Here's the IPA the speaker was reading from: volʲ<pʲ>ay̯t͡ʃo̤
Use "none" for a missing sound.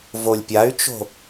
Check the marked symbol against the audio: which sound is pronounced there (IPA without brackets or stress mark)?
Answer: pʲ